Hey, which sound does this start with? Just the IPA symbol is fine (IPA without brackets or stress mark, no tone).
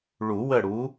ɭ